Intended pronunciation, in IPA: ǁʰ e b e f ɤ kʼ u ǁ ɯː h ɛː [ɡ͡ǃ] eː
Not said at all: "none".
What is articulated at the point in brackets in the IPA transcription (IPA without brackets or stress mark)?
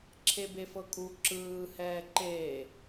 ǃ